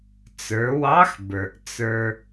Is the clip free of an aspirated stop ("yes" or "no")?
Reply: yes